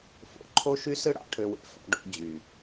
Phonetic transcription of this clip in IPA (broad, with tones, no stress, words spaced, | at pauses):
fo̰˨˦ǃʰo˦ʃy˦sɯ˦ ɽɑ̰˧ʈʰø˧wḛ˧ fɑ̰˧ɖo̰˧ d͡ʑy˨